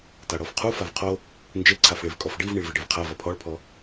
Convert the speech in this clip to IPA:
t a ɽ ɔ f qʰ u f a v qʰ o | n d͡ʒ e ǀʰ a f ɭ e v kʼ ɔ f ɖ i v ɳ i ɭ v i ɖ e v qʰ a v ɐ pʰ ɔ ɭ pʰ ɔ

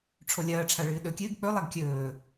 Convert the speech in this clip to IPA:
ʈ͡ʂʰ o lʲ ɐː ʈ͡ʂʰ a ɭ ɨː ɗ ɵ kʲ ɨː ɡ k͡p ɵ lˠ a ɡ kʲ ɵː

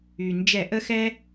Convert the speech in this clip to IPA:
y˩ n d͡ʒ ɛ˧˩˧ ʔ ə˥ x ɛ˥

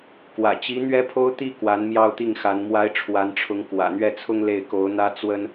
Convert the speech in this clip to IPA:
k w ä̰˨˩ t͡ɕ i˧˥ n̪ ɥ ɛ˥ pʰ o˥ ʊ̯ t̪ i˥˩ k w a˧˥ n m j ɑ˥˧ ʊ̯ t̪ i˥˩ ŋ x a˧˥ n m w a˥ ɪ̯ ʈ͡ʂʰ w a˧˥ n ʈ͡ʂʰ ʊ˧˥ ŋ k w ä̰˨˩ n̪ ɥ ɛ˥˩ t͡sʰ ʊ˥ ŋ l e˥˩ ɪ̯ k o˧˥ ʊ̯ n̪ ä˥ t͡s w ə˥ n

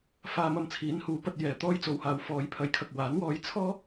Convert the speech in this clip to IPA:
f aː˧ m ɐ˧ m t͡sʰ iː˨˥ n h uː˨˥ p ɐ˧ t̚ j ɛː˨ t̪ ɔː˧ j t͡s o˨ w h aː˨ w f ɔː˨ j pʰ ɐ˨˧ j kʰ ɐ˨ k̚ w aː˨˥ n w ɔː˧ j t͡sʰ ɔː˥

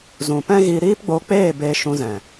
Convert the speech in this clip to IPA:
z ũ˨ p ɛ̃˦ ɣ iː˧ ɾ iː˦ p ɡ͡b o˧ k͡p eː˦˨ b eː˧ ʃ ũ˧ z ɛ̃˨

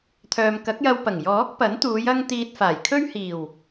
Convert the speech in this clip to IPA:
t̪ʰ œː˨ m k ɐ˨˥ k̚ j ɐ˧ w p ɐ˨˩ ŋ j ɔː˨˥ k̚ p ɐ˨˥ n t̪ uː˨˧ j ɐ˧ ŋ t̪ iː˧ t̚ f aː˨˩ j kʰ ɵ˥ ɥ h iː˨˩ w

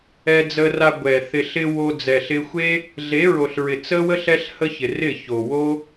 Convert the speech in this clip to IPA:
ɛ˧ d͡z ə˧ r a˧ ɡʷ ɛ˨ θ ɪ˨ ɬ ɪ˧ w o˧ d͡z ɛ˨ ɬ ɪ˧ xʷ e˦ | ɮ e˨˦ ɹ o˨ ɬ ɹ ɪ˨ t͡s ə˦ w ə˦ ɬ ɛ˦ ɬ h ə˦ ç ɪ˨ r ɪ˦˨ ç o˨ w o˦

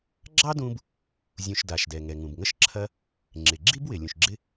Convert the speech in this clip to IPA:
ɡ͡ǁ ɑ˥ d ũ˦ b | zʲ ũ˨ ʃ d a˩ ʃ d ɛ˩ ŋ ɛ˩ ŋ ũ˩ b ŋ ə˦ ʃ ǁʰ ɐ˦ | ŋ͡ǁ ɪ˩ ɡ͡ǁ i˥ b w ɪ˩ lʲ ũ˩ ʃ ɡ͡ǁ ɪ˦

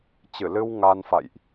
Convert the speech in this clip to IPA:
t͡ɕ ɨ˧˩ l ɨ˧ w ŋ a˧ n f a̰˧˨ j ʔ

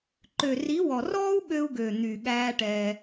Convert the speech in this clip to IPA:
ǃ ø˨ r i˨˦ w ɔ˨ r ɔː˦ u̯ ɠ ø˦ u̯ ɡ ø˨ n̪ y˨ ɠ æː˦ ʈ ɛː˧

